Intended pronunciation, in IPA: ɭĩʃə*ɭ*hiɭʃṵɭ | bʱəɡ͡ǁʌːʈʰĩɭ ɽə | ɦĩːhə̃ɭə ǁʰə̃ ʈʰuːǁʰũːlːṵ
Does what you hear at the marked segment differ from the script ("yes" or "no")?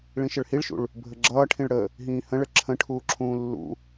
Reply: no